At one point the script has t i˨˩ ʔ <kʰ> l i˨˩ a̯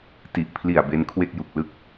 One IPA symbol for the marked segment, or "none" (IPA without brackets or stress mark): pʰ